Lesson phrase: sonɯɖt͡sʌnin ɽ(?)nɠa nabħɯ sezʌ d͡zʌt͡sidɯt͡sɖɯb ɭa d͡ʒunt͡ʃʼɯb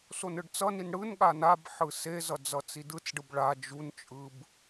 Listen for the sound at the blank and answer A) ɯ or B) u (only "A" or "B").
A